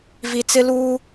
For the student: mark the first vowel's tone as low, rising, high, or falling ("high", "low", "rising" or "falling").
low